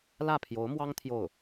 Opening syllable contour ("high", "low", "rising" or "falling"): falling